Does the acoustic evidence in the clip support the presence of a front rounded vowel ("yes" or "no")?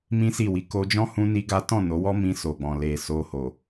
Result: no